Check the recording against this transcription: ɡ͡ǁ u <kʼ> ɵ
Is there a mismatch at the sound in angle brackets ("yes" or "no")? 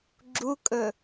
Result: no